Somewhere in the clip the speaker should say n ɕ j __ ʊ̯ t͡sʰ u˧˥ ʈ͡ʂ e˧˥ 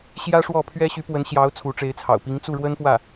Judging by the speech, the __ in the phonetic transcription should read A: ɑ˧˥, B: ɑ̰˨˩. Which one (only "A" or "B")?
A